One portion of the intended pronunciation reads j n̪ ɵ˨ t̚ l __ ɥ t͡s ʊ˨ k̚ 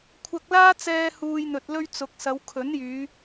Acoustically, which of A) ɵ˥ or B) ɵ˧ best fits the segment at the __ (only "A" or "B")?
B